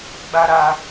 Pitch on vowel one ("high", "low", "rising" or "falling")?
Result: high